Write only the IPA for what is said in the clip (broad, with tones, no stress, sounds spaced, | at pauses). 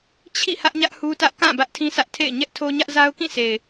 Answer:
t͡ɕʰ ḭ˦˨ h ä˦ ʔ ɲ ä˦ ʔ h u˦ t ä˦ ʔ k ã˦˨ b ä˦ ʔ tʰ ĩ˦ sʰ ä˦ ʔ tʰ ḛ˦˨ ɪ̯ ɲ ɛ˦ ʔ tʰ o˦ ɲ ä˦ ʔ z a˦ ʊ̯ k ĩ˦˨ sʰ e˨ ɪ̯